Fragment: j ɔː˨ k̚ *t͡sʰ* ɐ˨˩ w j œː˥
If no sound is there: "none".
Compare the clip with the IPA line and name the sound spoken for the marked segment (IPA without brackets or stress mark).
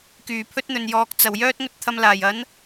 t͡s